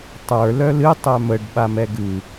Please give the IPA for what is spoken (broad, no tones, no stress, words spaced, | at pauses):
tˤə˞ lœlɨ tˤœməɖ ɓamɛɡɨ